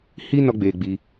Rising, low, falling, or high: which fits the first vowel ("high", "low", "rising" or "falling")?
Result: high